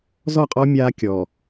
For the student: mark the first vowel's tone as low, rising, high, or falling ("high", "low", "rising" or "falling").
falling